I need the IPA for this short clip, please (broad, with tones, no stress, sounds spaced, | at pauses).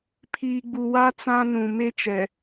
pʰ iː˨ ɡ͡b u˨ w a˦ t͡s ã˦ n ũ˨ m e˦ t͡ʃ ɛ˨